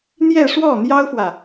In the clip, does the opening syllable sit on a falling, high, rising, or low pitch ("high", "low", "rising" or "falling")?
falling